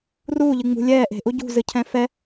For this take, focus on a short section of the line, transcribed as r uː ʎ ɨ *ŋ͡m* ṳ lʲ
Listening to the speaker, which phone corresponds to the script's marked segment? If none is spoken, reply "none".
ŋ͡m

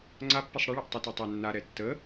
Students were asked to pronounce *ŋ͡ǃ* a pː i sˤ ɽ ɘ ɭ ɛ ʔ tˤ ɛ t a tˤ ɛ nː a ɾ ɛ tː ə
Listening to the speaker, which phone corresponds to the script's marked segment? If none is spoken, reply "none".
ŋ͡ǀ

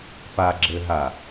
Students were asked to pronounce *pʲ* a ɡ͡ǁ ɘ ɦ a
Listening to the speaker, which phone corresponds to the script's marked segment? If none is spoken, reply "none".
p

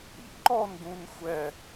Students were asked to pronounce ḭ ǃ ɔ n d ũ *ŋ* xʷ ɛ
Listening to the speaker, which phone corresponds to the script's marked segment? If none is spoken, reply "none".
n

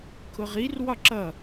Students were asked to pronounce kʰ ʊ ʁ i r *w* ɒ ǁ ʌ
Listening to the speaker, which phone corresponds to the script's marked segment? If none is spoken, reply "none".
w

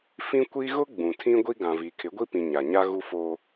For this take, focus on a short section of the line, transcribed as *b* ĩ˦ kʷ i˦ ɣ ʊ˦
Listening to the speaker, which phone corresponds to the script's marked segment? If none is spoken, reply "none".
f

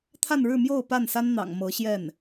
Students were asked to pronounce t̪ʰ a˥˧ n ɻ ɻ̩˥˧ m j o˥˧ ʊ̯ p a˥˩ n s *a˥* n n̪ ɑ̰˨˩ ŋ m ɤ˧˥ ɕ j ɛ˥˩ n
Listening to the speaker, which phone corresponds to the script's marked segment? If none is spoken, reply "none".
a˥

